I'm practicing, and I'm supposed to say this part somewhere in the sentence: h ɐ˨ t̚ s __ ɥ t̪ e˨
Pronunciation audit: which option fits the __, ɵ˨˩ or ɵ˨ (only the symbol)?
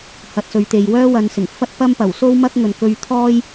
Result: ɵ˨